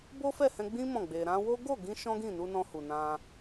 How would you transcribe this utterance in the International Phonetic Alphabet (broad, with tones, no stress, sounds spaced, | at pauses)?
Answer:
b o˦ f ɛ˦˨ h ɛ̃˧ ɡ͡b ĩ˦ m ɔ̃˦˨ ɡ͡b e˧ ɾ ã˧ w o˦ ɡ o˦˨ ɡ ĩ˧ ʃ ɔ̃˦ ɡ ĩ˦˨ n u˧ n ɔ̃˧ h u˨ n ã˧